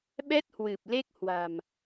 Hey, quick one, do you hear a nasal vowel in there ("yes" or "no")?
no